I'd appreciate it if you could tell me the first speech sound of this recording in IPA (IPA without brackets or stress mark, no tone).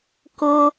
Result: k